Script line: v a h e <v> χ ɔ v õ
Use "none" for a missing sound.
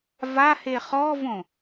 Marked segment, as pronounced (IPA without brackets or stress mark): none